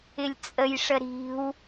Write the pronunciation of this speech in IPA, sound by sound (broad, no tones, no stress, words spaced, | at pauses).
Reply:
ɪlʲt͡sʼəjʂə ɾi̤w